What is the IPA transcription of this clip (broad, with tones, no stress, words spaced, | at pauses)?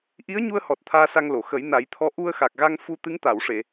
ʔi˧˥ə̯ɲu˧ə̯hɔ˨˩t̚ t̪ʰaː˧sa˧ŋlo˨˩˨ xə˨˩˦jna˨˩˦jt̪ʰɔ˧˥ ʔu˧ə̯xa˨˩k̚ɣa˧ŋfu˧ t̪ɨ˧˥ŋt̪a˨˩˨wʂe˨˩˨